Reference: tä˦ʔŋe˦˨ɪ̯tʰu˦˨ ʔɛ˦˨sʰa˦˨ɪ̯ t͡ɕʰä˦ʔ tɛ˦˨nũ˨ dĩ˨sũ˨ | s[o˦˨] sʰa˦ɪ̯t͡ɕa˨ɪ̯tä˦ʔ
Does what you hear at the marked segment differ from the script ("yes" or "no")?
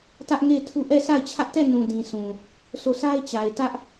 no